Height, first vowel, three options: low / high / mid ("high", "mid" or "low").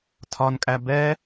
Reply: low